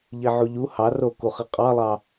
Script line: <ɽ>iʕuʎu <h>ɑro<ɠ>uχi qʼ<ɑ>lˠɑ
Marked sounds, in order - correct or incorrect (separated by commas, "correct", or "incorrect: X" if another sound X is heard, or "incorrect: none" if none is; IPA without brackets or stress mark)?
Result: incorrect: ʎ, correct, incorrect: k, correct